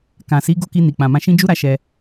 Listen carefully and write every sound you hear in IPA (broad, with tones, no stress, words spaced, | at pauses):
kã˨si˨˦ ɡo˦˨ki˧ ni˨k͡pã˨mã˧ ʃĩ˦ d͡ʒu˦ ɾa˦ʃɛ˧